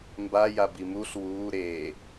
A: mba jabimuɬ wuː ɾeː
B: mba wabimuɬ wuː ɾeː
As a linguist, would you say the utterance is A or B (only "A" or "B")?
A